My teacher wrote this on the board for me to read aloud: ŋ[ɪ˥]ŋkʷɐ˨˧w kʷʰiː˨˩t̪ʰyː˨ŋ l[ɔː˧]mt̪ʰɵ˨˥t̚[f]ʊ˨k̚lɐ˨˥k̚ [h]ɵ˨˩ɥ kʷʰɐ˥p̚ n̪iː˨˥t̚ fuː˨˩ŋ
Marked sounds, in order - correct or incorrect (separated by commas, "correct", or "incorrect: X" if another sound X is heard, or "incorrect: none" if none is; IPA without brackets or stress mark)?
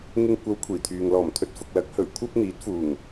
incorrect: ɪ˧, incorrect: ɔː˨˩, correct, correct